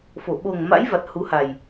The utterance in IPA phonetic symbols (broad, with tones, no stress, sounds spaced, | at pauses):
f o˧˩ ɓ o˨˩ ŋ m a̰˧˥ j v a˨˩ t̚ h u˨˦ h a˨˩ j